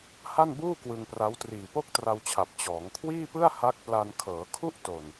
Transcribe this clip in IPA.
ha˥˩nbuː˥˩ kwɯ˧ŋpra˦˥w triː˨˩po˥˩k̚tra˧wt͡ɕʰa˨˩p̚ t͡ɕɔː˩˦ŋkʰwiː˥˩pɯ˥˩a̯ ha˦˥k̚pla˧n kʰɤː˩˦kʰu˥˩ʔto˨˩n

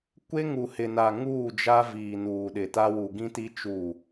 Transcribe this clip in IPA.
kʷe˦ŋu˨hɪ˨na˨ ŋuː˦˨d͡ʒa˦ viː˨nuː˨ɗɪ˨ ta˦wu˨ ɡĩ˦ti˦ t͡ʃu˦˨

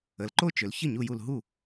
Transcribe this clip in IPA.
ə˩˧lǃo˥˩t͡ʃʏ˩˧l çə˥˩ɲu˧˩ju˧˩l ɦu˥˩

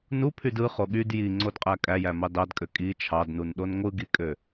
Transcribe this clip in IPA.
nupʰyd ɯχo ɠyd jiŋ͡ǀodqʼæ kʼæjæmɑ dɑdkʼø kʼi t͡ʃʰɑdnunɗon ŋʷɯɡikʼø

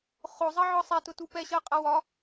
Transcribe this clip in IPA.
χozˤɜ ʕɒsˤɛtʊ tupɛɕɜqʼa wɒ

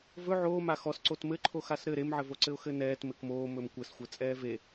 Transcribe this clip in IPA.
vɵ ʕoː maxɔs ǀotmɘ ǃʰoxasɾɘ ɾemʕɘvoǀɘʊ̯ xɘnɛːt mɘkmoː mɵmkʷɘsxʷɘ t͡sʼɛːve

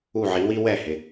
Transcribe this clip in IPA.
u˥˩ʕi˩˥wi˥ wɛ˥˩ hɪ˩

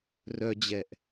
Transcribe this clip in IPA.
rœd͡ʑɛʔ

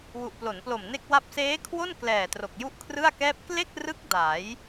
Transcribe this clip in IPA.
wu˨˩ʔplo˩˦nplo˨˩m ne˥˩k̚wa˥˩p̚ seː˦˥kʰwo˥˩nklɛː˨˩ tro˨˩k̚ju˥˩ʔkʰrɯ˥˩a̯kɛː˥˩p̚ kle˥˩k̚rɯ˦˥k̚ da˩˦j

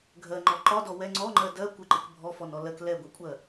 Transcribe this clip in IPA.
ɡʱɜŋ͡ǃɔ ǃɒdɔ wɛ ŋ͡ǀɔŋ͡ǃɜ dɜ kʷɪǃɪk bʱɔfɔnɔ lɜk lɛɡʷɛkʷʼɜ

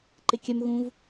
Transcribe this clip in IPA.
ǃɪkʲœmɣũv

